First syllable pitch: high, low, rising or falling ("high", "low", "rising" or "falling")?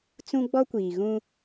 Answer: high